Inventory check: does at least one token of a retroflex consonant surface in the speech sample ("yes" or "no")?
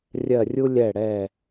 yes